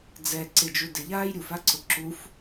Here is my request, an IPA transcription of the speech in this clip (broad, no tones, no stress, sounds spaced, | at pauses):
d͡z ɛ ǀ ɪ d͡ʒ u d ɪ ʎ aː j ɾʲ u f a ǀ ʊ ǁ u f